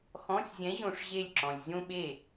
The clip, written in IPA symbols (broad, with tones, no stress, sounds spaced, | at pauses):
x ɔ̃˧˥˧ sʲ zʲ ɛ̃˧˥ ʑ õ˥˨ ʂ ʑ e˥˨ lʲ ǁ ɔ̃˨ lʲ zʲ õ˥ ɓ e˥˨